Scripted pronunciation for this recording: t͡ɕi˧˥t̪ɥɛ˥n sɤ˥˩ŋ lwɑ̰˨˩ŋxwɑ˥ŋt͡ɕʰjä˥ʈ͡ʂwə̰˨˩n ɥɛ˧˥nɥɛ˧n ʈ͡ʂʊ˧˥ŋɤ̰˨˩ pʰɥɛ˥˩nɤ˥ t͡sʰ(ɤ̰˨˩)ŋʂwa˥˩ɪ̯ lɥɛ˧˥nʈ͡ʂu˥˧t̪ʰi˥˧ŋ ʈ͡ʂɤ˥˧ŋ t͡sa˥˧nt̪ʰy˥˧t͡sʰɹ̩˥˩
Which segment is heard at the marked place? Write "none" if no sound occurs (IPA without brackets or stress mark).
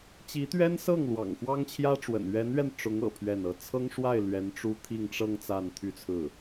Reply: ɤ˥